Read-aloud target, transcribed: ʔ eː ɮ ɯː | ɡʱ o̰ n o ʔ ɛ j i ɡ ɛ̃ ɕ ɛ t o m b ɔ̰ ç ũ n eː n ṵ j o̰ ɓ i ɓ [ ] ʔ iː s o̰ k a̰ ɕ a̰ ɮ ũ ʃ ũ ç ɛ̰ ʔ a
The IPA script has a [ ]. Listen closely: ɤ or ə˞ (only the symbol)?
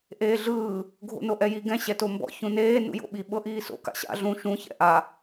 ɤ